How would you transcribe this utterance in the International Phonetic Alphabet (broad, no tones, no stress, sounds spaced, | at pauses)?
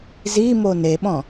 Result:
z i m o n e ɓ ɔ̃